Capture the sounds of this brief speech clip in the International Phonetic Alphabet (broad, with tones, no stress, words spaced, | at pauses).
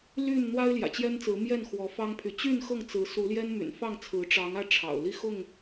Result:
ly˥˨n n̪wa˦ɪ̯ljä̰˨˩t͡ɕjɛ˦nt͡sɹ̩˨˦ mjɛ˥˨nxwɔ˨˦fɑ˦ŋpʰy˨˦ t͡ɕy˥˨nxɤ˥˨ŋt͡sɹ̩˨˦ su˨˦ljɛ˦nmy̰˨˩nfɑ˥˨ŋ t͡sʰɹ̩˨˦ʈ͡ʂɑ˨˦ŋä˥˨ ʈ͡ʂʰɑ̰˨˩ʊ̯li˥˨xʊ˥˨ŋ